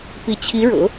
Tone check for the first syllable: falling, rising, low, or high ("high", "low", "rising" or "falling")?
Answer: rising